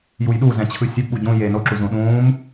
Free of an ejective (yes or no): yes